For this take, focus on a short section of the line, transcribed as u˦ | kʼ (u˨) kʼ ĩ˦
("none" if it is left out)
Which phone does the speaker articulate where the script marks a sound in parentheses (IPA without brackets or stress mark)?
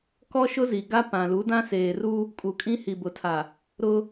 u˨